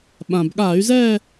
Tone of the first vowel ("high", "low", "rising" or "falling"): low